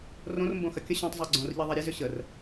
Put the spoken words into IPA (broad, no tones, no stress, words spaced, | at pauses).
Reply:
rõrmbõ xɐkʲə ɕõtˤ zˤiɡ͡ǀõrʎiðˤɛ ɾʲezʏ ɕər